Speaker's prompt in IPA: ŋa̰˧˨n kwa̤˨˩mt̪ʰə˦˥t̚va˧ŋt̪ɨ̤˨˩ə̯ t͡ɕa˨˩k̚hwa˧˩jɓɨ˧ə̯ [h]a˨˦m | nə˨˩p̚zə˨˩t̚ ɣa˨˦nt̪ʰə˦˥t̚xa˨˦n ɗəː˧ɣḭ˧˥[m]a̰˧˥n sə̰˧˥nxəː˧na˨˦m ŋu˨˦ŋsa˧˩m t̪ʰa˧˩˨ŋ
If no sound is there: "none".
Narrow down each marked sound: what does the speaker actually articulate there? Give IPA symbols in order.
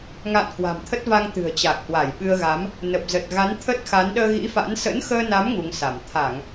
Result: ɣ, f

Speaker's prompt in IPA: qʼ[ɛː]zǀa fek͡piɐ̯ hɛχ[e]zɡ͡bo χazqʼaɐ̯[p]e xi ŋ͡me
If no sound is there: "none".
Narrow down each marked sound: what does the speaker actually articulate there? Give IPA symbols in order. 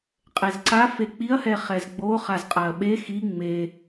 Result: ɛ, ɛ, ɓ

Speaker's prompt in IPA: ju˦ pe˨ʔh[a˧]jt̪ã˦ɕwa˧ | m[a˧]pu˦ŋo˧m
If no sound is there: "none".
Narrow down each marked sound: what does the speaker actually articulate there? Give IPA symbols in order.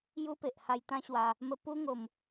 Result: a˧, ə˧

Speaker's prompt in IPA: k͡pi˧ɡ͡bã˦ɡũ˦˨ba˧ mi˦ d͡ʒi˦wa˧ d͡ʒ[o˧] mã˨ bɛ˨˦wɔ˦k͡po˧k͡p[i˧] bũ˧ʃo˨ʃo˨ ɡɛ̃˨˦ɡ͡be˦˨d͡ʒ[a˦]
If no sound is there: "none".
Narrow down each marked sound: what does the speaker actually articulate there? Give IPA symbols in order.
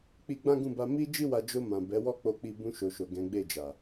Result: o˧, i˧, a˨

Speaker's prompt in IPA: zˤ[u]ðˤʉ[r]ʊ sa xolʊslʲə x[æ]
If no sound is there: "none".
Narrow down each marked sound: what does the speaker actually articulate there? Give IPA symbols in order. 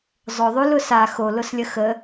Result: ʊ, l, ə

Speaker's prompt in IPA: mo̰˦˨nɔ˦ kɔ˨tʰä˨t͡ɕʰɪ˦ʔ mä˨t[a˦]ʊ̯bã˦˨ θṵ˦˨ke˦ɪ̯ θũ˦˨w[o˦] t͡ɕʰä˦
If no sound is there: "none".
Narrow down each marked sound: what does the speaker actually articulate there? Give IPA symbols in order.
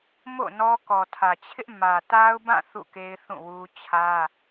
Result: a˦, u˦

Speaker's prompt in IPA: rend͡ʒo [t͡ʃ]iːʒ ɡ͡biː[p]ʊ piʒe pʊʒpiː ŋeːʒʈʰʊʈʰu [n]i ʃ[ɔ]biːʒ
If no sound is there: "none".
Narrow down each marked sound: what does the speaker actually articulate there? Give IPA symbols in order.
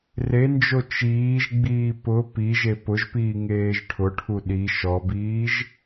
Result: t͡ʃ, p, ɗ, ɔ

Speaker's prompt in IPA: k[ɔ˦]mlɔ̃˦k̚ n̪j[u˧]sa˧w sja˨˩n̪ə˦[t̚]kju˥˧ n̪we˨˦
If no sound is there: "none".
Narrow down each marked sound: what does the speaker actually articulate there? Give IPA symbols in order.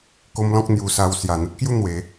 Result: o˦, u˧, t̚

